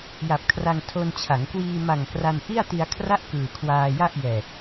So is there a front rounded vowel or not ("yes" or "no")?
no